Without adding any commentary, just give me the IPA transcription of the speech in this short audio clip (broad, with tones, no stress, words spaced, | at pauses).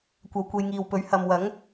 kʷɐ˨˧wkʷe˨˧jŋiː˨wpɵ˨˥ɥ hɐ˨mwɐ˨˥ŋ